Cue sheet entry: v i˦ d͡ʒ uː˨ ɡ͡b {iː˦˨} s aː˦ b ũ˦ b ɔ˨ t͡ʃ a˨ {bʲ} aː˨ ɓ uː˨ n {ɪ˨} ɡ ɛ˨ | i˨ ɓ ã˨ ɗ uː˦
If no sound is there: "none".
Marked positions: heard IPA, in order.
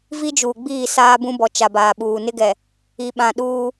iː˦˨, b, ɪ˦

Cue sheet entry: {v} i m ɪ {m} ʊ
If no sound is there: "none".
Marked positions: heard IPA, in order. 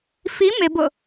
f, b

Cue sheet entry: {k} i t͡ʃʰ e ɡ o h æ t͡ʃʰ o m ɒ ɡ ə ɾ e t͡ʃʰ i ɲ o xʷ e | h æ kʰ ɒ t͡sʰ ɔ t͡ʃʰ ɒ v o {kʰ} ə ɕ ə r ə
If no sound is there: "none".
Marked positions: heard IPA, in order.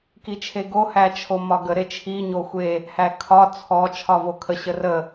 k, kʰ

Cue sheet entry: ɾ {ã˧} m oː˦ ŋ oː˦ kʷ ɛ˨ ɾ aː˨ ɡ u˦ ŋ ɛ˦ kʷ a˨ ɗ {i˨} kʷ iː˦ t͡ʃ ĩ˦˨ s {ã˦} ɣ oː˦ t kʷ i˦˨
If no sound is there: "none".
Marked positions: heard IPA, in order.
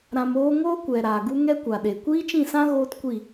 ã˧, e˨, ã˦

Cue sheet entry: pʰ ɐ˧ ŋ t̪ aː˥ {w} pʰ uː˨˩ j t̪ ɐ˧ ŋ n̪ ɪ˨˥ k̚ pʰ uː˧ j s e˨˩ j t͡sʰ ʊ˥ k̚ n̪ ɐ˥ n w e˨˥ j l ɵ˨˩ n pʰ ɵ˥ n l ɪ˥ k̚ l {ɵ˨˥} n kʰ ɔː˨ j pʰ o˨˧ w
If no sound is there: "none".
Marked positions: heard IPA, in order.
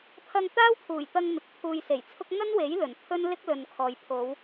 w, ɵ˨

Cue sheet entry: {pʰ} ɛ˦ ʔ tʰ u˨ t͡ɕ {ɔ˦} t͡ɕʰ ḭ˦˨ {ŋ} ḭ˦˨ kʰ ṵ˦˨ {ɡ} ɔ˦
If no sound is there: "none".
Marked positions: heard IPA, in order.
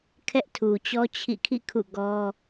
kʰ, ɔ˦, kʰ, ɡ

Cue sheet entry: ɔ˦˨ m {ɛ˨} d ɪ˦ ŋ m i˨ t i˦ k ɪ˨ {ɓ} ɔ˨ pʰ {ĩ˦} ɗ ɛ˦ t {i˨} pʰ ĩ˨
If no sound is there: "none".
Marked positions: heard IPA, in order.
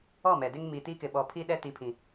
ɛ˨, ɓ, i˦, i˨

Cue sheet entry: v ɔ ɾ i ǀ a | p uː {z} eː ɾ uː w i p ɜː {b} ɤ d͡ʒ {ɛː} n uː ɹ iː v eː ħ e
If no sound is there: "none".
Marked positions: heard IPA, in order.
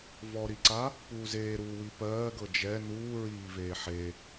z, ɡ, ɛ

